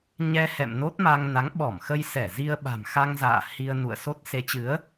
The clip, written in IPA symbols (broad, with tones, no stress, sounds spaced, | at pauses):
ɲ ɛ˧ h ɛ̰˧˨ m n o˦˥ t̚ m a˧ ŋ n a˨˦ ŋ ɓ ɔ˧˩ m x ə˧ j s ɛ˧˩ z i˧ ə̯ ɓ a̤˨˩ m x a˧ ŋ z a̰ː˧˨ h i˧ ə̯ n ṵ˧˨ ə̯ s o˦˥ t̚ s e˨˦ t͡ɕ ɨ˨˦ ə̯